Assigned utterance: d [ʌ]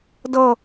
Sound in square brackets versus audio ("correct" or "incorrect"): correct